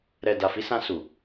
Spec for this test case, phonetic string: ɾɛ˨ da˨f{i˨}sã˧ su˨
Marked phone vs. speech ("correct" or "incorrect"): incorrect